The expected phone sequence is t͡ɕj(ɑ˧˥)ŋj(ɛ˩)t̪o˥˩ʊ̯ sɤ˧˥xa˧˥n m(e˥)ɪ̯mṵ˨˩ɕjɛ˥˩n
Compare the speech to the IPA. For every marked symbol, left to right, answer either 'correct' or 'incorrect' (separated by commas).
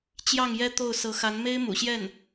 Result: incorrect, incorrect, correct